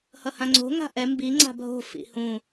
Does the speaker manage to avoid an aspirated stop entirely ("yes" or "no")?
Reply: yes